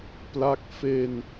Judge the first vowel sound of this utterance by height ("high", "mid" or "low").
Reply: low